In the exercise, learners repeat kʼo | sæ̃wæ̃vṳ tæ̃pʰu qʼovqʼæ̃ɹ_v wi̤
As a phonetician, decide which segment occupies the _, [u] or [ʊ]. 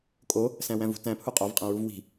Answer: u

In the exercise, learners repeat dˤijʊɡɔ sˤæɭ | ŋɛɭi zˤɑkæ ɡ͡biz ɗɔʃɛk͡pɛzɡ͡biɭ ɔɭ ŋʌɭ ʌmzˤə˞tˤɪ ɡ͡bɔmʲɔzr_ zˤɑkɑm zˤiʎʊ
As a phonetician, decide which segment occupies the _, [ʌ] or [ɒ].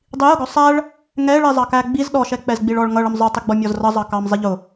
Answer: ʌ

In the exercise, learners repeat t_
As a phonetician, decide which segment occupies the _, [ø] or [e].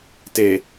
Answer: e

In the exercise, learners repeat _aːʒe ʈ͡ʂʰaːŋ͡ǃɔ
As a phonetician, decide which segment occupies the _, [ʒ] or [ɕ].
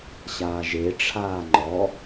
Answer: ɕ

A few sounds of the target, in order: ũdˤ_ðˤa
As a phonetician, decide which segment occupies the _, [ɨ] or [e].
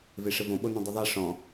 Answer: ɨ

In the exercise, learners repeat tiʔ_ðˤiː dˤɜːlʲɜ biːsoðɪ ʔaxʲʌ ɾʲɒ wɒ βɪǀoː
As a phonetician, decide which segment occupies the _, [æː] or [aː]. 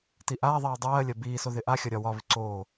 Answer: aː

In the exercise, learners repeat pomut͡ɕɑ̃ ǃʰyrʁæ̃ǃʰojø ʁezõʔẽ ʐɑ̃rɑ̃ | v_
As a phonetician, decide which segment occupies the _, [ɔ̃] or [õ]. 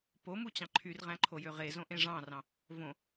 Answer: õ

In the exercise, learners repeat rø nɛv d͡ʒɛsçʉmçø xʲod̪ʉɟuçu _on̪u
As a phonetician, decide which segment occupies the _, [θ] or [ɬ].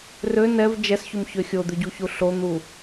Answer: ɬ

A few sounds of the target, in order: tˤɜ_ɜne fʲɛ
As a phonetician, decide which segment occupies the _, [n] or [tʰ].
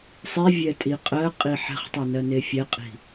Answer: n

